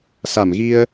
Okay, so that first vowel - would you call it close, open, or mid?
open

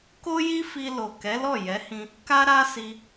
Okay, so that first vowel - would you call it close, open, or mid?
mid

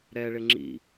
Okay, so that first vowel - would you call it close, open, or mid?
mid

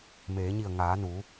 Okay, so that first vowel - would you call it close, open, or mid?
mid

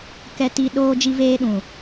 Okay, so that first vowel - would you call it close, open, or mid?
mid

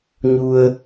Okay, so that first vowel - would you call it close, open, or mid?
close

